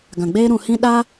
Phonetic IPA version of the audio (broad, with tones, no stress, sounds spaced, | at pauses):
ɡ ã˨ ɡ͡b eː˦ ɾ ũ˧ h ĩ˦ ɗ a˦